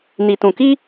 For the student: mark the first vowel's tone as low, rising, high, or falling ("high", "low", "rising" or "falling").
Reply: low